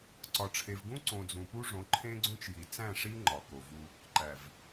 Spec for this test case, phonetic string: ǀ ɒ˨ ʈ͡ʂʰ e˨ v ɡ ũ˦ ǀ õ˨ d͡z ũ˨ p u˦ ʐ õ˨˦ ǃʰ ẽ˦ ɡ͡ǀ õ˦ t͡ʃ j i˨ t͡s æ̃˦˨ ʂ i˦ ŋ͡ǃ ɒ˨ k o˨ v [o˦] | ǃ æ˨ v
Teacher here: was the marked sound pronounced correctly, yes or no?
no